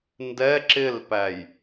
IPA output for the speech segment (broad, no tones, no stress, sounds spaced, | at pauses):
n d ɛ ǁ ɪ l p æ j